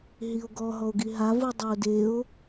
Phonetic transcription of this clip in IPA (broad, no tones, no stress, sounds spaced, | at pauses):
ɦ i o̯ ɡ ɔ ɦ ɔ o̯ ɡ i ɦ a v ɯ dˤ ɛ o̯ d e o̯